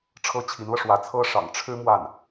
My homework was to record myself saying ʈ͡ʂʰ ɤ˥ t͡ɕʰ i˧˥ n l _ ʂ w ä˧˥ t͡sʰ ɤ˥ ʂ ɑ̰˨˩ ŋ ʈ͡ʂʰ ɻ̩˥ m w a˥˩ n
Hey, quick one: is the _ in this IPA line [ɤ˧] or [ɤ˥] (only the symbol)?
ɤ˧